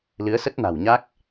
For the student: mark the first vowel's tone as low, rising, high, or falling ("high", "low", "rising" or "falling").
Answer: rising